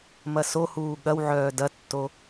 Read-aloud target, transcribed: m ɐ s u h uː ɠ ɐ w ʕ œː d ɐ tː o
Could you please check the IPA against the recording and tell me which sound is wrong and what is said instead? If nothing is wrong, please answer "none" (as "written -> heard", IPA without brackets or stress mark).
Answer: u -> o